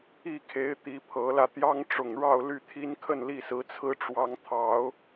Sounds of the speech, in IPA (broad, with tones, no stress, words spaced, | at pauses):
i˥˩kʰe˧˥ɪ̯ t̪i˧˥pʰɤ˧˥lä˧ t̪jɑ˥ŋʈ͡ʂʊ˨˩ŋɻɑ˥˧ʊ̯ ly˥˩t̪ʰi˥n kʰə˥˧nli˥˩sɹ̩˧˥t͡sʰɹ̩˥ ʈ͡ʂwɑ˧˥ŋt̪ʰɑ˨˩˦ʊ̯